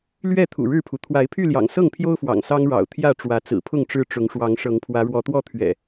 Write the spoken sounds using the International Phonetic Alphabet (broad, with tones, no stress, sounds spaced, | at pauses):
l ɥ ɛ˥˨ t̪ʰ ṵ˨˩ ɻ ɻ̩˥˨ pʰ u˩ t̪ʰ w a˨˦ ɪ̯ pʰ y˥˨ l j ɑ̰˨˩ ŋ s ɤ˥˨ ŋ pʰ j o˦ ʊ̯ f w ɑ̰˨˩ ŋ s ɑ˦ ŋ ɻ ɑ̰˨˩ ʊ̯ t̪ʰ j ä˥˨ ʈ͡ʂ w ä˨˦ t͡s ɹ̩˨˩ pʰ ʊ˥˨ ŋ ʈ͡ʂ ɻ̩˦ ʈ͡ʂ ʊ˨˦ ŋ ʂ w ɑ˨˦ ŋ ʂ ɤ˨˦ ŋ pʰ w ä˨˦ ɻ w ɔ˨˦ t̪ w ɔ˥˨ t̪ʰ ɥ ɛ̰˨˩